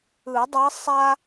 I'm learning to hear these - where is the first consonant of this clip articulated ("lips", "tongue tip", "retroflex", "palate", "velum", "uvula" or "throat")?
tongue tip